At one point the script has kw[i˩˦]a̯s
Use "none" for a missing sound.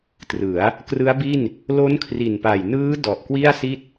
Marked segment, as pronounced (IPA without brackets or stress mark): i˥˩